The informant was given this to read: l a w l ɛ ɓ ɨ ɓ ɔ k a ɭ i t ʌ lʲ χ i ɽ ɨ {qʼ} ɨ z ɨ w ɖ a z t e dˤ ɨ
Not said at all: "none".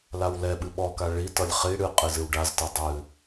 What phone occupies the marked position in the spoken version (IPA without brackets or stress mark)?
qʼ